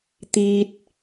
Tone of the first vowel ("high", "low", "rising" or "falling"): high